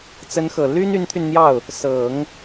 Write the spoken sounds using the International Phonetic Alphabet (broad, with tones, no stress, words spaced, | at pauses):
t͡sə˧˥nxɤ˨˩ ly˥n y˧˥nt̪ʰy˧nn̪jɑ˥˩ʊ̯ | sɤ˨˩˦ŋ